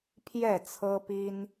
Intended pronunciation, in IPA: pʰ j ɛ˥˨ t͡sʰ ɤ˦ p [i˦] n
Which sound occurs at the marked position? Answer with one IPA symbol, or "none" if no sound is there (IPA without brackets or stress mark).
i˦